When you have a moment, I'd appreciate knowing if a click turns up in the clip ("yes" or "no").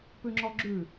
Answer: yes